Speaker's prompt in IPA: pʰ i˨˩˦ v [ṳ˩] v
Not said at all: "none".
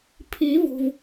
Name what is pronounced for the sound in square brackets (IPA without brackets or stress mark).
ṳ˩